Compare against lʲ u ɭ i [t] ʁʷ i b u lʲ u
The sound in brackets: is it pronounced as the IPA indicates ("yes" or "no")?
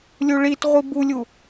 yes